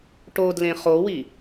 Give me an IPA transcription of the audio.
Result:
ʈ o d l ẽ χ o w i

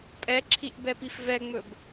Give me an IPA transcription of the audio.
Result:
pʼ ɛ ǁʰ i ʔ b ɛ p i f v ɛ ŋ͡m ɵ b

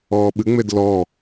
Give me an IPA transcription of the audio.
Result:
ɔː ɓ ɨ ŋ͡m e d l ɔː

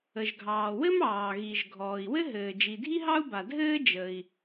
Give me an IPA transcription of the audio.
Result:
ə˩ ʒ ɡʱ ɑː˩ w ɘ˥ m ɑː˩ ɣ i˩ ʒ ɡʱ ɔː˩ i̯ w ɘ˥ ɦ ɘː˩ d͡ʒ i˩ dʱ i˥ ɦ ɑ˥ u̯ b a˩ dʱ ɘː˥ d͡ʒ ə˩ i̯

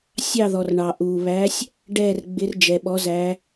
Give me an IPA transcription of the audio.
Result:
sʲ ɑ˦˨ ð ɔ˩ r ɳ ɑ˩ ʔ u˩ β æ˨˦ sʲ | ɖ ɛː˦˨ r ɡ͡b ɪ˨˦ r d͡ʒ ɛ˩ ɓ ɔ˨˦ z æ˨˦

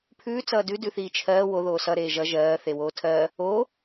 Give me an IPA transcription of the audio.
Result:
pʰ ʉː t͡s ʌː d ʉ d ʉ θ iː t͡ʃʰ ɜː w o ð oː s ʌ ɾ eː ʒ ʌ ʒ ɜː θ e w oː tʰ ɜː | oː

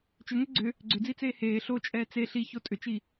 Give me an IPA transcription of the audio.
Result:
t͡ʃ ʏ ŋ ʏ ɡ͡ǀ ʏ | ɡ͡ǀ ʏ d͡z i t͡s eː h eː ɬ o t͡ʃʼ ɛː t͡s e ɬ i ç o tʼ ʏ t͡ʃ i

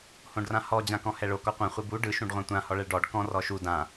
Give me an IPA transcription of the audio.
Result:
h õ ɖ r ã h ɔ d͡ʑ ã k ɔ̃ h ɛ ɭ o k ɔ qʷ ã χʷ i b u ɖ ɯ ʃ ũ ɖ ʁʷ ã tʷ ã h ɔ ɭ ɛ ɭ ɖ ɔ ɖ k ɔ̃ r ɔ ʃ u d ã

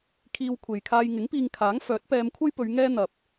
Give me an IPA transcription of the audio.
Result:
kʰ iː˧ w kʷʰ e˨ j kʰ aː˧ j ŋ ɪ˨˥ ŋ p iː˧ ŋ kʰ aː˨˥ ŋ f œː˨˥ t̚ p ɛː˧ m kʷʰ ɐ˥ j p ɵ˨˧ ɥ ŋ ɛː˥ n̪ ɐ˨ p̚

